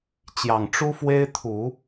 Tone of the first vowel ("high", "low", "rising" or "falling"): low